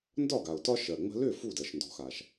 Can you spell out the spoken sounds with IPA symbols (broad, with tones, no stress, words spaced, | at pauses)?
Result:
ndɒ˥˩ ɡa˩ʊ̯tɒ˥ ʃɜ˩ŋ͡mə̤˧lʏ˥˩ fu˥˩dɜ˩ʃndɔ̤˩˥xa˩ʃ